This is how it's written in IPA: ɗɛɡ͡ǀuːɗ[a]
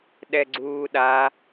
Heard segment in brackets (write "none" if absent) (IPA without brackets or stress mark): a